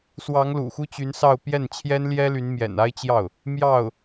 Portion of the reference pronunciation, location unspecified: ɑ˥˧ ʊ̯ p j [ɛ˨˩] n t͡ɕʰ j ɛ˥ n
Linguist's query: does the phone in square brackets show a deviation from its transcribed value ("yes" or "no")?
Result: yes